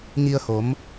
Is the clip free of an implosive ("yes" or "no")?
yes